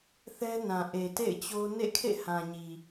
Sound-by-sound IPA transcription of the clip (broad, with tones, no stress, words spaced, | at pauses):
θɛ˦nã˨ ʔe˨tḛ˦˨ɪ̯t͡ɕo˦ nḛ˦˨kʰḛ˦˨hã˨ɲi˨